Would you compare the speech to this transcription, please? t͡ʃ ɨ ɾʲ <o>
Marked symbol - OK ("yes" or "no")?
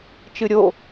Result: yes